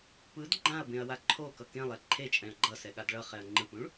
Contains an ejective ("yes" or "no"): yes